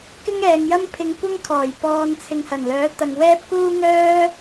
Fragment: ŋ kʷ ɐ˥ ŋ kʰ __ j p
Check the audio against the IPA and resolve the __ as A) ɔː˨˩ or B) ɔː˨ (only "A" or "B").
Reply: A